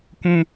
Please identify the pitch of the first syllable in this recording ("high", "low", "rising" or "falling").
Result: high